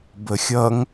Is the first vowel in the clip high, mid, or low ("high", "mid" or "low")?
mid